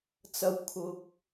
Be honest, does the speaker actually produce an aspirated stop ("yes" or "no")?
yes